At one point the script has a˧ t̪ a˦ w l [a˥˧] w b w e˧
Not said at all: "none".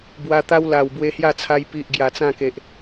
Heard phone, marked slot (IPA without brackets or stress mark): a˨˩